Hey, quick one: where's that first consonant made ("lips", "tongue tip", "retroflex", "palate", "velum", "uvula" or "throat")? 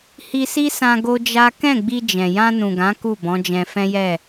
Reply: throat